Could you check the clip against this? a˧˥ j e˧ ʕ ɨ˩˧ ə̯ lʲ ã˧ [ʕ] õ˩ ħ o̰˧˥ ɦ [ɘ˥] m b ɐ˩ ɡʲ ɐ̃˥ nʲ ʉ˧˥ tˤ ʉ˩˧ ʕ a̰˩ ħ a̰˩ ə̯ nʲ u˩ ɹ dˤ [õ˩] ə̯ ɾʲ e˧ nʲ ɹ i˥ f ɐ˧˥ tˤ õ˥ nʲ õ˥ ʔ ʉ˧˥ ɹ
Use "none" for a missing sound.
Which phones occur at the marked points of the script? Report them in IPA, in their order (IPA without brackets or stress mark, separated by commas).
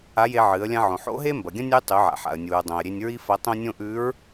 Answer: ʕ, e˥, õ˩